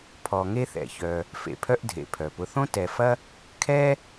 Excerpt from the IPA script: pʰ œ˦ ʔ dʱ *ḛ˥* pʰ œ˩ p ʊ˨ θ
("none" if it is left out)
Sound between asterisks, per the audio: ḛ˩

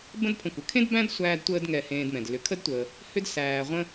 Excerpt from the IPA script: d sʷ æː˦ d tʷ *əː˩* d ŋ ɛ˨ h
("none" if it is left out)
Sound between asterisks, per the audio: əː˦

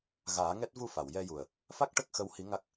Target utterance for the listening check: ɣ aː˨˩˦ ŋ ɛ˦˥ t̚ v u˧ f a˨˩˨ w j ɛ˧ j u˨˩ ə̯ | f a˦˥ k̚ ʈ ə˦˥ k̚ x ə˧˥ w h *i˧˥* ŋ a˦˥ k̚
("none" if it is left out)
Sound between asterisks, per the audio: i˧˥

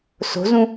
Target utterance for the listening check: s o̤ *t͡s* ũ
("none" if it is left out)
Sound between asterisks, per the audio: z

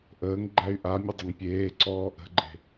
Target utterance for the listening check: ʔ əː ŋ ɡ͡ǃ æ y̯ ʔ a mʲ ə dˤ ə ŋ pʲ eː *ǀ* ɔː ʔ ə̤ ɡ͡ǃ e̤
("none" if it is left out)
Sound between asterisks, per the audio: ǀ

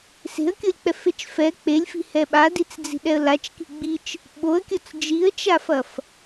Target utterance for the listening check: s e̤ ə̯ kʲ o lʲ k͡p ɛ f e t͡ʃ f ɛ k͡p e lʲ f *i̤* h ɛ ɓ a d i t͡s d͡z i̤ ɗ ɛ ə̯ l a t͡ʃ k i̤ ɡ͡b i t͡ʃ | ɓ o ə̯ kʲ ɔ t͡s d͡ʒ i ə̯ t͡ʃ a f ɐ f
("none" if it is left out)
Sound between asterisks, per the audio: i̤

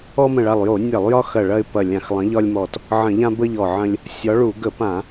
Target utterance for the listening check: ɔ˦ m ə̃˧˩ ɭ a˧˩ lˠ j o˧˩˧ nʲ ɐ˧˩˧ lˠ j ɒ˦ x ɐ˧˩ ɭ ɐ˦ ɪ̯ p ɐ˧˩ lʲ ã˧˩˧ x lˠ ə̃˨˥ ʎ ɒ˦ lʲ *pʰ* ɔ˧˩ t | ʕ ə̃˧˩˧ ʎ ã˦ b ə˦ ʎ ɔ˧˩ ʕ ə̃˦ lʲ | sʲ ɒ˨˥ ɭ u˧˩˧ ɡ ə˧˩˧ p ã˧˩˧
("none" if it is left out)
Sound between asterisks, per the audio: m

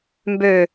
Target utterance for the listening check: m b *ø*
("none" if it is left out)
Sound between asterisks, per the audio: ø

